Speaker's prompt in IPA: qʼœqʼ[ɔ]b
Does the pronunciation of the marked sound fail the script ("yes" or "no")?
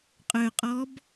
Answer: no